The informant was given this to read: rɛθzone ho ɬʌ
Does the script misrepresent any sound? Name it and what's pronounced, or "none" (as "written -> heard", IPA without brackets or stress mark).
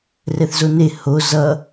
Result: ɬ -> z